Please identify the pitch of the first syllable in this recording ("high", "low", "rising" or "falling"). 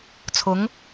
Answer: rising